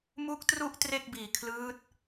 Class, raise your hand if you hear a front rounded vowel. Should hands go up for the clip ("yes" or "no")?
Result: no